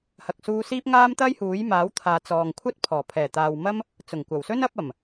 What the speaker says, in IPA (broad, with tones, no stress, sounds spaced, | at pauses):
h ɐ˨ k̚ s uː˧ s iː˥ p̚ ŋ aː˥ m t̪ ɐ˥ j h uː˨˥ j m aː˨˥ w t̪ʰ aː˨ t͡s ɔː˨ ŋ kʷʰ ɐ˥ t̚ pʰ ɔː˨˩ pʰ ɛː˨˩ t̪ aː˨ w m ɐ˥ m | t͡s ʊ˨˩ ŋ kʷ ɐ˨˩ w s ɵ˥ n ɐ˨˥ p̚ ɐ˨˩ m